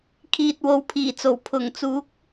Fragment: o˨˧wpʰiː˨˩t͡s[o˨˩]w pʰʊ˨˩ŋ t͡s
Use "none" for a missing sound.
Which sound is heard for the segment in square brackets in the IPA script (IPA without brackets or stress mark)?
o˨˩